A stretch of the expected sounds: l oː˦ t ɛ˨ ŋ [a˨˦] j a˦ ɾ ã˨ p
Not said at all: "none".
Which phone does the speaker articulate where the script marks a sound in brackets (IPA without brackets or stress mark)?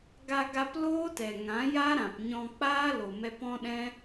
ã˨˦